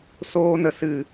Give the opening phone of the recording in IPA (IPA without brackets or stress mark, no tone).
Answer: s